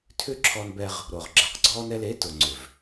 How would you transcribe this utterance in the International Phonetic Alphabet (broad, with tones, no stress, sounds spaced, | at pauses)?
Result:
tʰ ʏ˦ ǁʰ ɔ˧ n b ɛ˧ ʁ | ɾ o˨ ʁ ɡ͡ǁ ɛ˨ q ɡ͡ǀ ɔ˦ n ɛ˧ l e˨˦ t ʊ˨ ŋ͡ǀ ʏ˨ v